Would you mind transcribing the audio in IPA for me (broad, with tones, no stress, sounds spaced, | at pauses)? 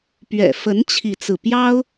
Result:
p ɥ ɛ̰˨˩ f ə˧˥ n t͡ɕʰ i˥˧ t͡s ɹ̩˥˩ p j ɑ˥ ʊ̯